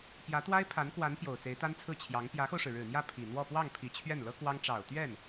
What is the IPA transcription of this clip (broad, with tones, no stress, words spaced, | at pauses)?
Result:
pjä˧˥t̪wa˥ɪ̯pʰa˧˥nkwa˧˥n pjo˨˩ʊ̯t͡se˧˥ɪ̯t̪a˥nt͡sʰɹ̩˥˩ t͡ɕʰjɑ˧˥ŋ pjä˧˥xo˧ʊ̯ʂɻ̩˩ ɻɻ̩˨˩n̪jä˥˩ pʰi˨˩n̪wɔ˥˧ pwɑ˥˩ŋpʰi˨˩ t͡ɕʰɥɛ˥˩nlɤ˥kwɑ˥ŋ ʈ͡ʂɑ˨˩ʊ̯t̪ɥɛ˥˩n